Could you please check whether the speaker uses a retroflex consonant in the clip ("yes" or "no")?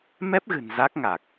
no